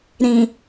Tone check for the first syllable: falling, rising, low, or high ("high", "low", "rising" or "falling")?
low